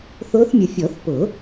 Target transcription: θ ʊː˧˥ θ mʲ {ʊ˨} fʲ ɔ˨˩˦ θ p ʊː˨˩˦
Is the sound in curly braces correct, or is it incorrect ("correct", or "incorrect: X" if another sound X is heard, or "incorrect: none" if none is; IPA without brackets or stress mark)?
correct